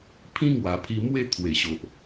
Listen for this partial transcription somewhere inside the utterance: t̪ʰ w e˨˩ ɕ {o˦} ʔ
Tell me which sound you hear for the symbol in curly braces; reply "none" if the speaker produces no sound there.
o˨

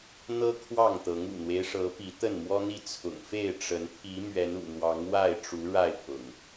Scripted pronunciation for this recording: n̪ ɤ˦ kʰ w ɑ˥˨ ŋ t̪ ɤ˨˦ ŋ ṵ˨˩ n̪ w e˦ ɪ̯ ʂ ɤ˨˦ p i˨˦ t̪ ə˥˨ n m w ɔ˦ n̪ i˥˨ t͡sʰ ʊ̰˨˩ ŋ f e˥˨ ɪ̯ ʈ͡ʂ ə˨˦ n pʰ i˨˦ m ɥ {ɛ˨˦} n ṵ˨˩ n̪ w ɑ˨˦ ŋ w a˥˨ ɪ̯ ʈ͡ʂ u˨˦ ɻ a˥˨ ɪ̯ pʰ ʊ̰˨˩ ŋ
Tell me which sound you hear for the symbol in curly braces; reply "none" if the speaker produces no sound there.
ɛ˨˦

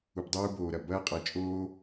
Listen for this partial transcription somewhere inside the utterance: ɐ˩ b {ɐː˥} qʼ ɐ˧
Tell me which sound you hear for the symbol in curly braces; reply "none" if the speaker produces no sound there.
ɐː˥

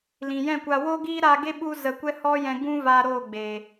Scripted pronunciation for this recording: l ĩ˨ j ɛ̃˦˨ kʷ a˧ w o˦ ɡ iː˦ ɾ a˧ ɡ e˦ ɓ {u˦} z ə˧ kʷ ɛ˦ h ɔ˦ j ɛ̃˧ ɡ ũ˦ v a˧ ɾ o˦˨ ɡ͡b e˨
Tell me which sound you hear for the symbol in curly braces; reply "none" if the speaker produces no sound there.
u˦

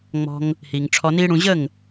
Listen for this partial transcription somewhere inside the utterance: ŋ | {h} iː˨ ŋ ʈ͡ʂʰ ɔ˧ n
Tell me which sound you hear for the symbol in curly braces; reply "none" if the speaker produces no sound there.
h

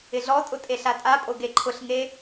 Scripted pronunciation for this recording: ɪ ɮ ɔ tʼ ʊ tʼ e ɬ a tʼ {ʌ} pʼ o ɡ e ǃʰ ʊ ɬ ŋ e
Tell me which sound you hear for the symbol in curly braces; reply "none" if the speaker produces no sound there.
a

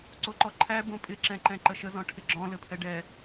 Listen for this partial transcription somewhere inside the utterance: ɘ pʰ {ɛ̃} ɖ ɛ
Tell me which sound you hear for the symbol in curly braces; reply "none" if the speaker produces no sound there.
ɛ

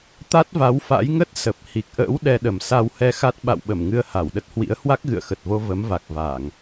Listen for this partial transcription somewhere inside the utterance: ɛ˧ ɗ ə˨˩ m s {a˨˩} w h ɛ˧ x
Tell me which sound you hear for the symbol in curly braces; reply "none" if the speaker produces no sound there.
a˧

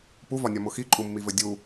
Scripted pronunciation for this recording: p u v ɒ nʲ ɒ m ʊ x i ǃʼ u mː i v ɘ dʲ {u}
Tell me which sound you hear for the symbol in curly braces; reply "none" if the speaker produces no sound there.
u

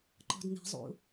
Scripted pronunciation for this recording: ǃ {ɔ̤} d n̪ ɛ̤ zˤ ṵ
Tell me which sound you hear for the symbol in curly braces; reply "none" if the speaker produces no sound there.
ɔ̤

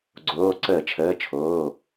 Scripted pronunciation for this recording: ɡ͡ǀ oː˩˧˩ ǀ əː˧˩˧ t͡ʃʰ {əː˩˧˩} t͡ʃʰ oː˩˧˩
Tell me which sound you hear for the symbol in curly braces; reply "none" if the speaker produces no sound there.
əː˩˧˩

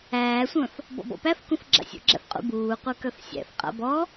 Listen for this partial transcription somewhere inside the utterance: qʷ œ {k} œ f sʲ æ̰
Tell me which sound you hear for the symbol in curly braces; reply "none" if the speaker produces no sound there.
k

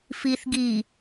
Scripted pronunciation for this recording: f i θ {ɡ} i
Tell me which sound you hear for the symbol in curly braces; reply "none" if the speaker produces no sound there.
ɡ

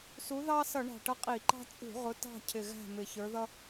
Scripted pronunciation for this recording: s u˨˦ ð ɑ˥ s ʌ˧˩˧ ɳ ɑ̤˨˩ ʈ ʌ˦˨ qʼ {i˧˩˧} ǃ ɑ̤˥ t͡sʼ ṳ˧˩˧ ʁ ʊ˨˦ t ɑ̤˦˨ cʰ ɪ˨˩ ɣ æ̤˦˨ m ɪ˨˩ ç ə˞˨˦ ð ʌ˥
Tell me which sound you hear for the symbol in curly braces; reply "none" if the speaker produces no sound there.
i˧˩˧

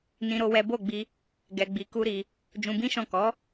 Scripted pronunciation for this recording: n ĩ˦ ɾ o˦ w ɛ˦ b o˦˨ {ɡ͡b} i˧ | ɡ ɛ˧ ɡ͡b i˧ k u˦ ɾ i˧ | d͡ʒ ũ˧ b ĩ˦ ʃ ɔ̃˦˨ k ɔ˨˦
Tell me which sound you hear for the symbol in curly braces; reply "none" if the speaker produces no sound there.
ɡ͡b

